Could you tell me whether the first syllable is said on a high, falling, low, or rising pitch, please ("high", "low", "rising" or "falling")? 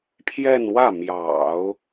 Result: falling